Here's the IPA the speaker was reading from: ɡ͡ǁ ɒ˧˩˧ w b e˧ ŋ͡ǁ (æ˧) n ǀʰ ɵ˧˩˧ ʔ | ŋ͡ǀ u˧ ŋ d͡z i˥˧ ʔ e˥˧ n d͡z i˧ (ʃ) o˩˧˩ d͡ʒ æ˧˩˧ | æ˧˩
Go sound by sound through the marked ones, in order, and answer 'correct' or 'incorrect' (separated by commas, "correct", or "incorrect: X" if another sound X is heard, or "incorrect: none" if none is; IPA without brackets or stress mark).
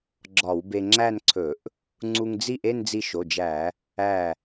incorrect: æ˥˧, correct